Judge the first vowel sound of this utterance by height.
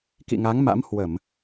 high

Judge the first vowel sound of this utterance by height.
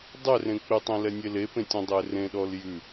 mid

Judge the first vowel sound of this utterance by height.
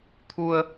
high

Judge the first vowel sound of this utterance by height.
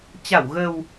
low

